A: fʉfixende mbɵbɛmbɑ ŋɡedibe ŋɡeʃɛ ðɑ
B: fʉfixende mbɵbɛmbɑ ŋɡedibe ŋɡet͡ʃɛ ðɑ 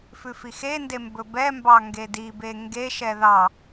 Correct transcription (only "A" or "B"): A